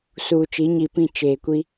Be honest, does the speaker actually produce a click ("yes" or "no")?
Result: no